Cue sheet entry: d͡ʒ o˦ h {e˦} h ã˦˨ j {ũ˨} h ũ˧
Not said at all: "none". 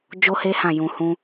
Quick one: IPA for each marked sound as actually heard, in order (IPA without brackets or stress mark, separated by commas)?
e˦, ũ˨